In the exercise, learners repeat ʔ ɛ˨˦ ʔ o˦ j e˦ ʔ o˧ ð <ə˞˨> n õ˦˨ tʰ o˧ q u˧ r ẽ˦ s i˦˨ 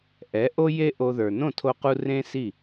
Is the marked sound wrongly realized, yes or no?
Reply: no